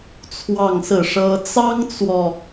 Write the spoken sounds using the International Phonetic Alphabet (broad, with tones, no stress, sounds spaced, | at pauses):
t͡sʰ w ɑ˥˧ ŋ s ɹ̩˥˩ ʂ ɤ˥ t͡s ɑ˥ ŋ t͡s w ɔ˨